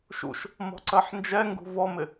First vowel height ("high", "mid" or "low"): high